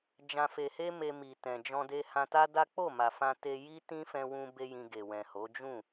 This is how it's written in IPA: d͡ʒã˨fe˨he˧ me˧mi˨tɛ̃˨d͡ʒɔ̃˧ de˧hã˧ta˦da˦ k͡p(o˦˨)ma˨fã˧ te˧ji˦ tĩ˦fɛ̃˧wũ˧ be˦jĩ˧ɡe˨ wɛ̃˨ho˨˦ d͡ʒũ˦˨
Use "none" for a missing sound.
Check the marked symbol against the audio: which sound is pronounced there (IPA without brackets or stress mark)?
o˦˨